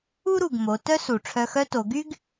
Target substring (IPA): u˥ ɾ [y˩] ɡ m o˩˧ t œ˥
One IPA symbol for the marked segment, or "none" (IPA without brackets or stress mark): u˩